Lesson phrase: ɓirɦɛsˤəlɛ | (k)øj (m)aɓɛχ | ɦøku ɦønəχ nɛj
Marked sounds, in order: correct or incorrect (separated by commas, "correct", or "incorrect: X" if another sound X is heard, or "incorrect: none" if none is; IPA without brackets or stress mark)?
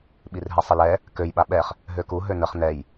correct, incorrect: ɓ